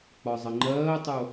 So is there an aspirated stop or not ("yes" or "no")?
no